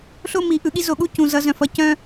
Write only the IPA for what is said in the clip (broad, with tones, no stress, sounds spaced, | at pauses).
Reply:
ɬ o˦ m i˨ ʔ ɯ˨ ɠ i˦ z o˨ ɠ u˦ c ũ˨ z ʌ˨˦ z œ̃˨ f ʌ˦ c œ̃˦